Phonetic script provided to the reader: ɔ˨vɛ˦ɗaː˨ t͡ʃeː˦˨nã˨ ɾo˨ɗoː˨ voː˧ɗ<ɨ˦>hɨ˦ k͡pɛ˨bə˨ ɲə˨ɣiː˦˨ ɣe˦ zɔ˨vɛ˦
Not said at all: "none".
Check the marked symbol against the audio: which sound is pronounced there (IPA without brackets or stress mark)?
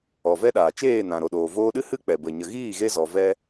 ɨ˦